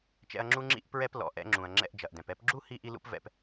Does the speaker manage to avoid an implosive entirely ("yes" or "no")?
yes